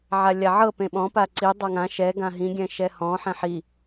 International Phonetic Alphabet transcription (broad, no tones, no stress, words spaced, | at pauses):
ʕalʲaʕɤ pẽɓɔ̃ paǀi dˤɤŋã ʃɛ ɡãɦĩ ɡʲɛ̃ʃɛhɔ̃ ħɛ̃ħi